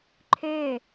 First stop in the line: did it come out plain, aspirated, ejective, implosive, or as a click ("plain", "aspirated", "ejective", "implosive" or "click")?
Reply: click